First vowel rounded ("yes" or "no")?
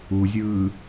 yes